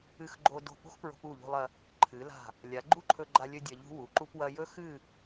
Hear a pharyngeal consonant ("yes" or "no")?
no